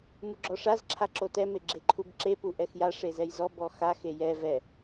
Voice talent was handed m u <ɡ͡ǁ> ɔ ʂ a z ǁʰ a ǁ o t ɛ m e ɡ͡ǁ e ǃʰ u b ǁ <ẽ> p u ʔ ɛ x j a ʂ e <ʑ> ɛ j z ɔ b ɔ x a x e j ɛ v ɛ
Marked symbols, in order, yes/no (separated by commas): yes, no, no